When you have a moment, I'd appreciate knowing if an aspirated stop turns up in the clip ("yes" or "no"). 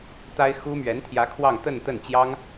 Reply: yes